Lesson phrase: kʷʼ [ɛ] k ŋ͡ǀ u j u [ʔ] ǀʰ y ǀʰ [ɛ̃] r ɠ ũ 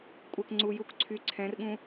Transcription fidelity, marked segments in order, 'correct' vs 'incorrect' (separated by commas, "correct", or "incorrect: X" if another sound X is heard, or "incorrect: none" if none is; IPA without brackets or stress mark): correct, incorrect: k, correct